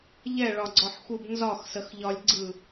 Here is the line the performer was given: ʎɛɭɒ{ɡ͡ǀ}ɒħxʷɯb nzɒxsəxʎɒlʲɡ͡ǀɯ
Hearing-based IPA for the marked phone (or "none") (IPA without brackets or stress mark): ɡ͡ǀ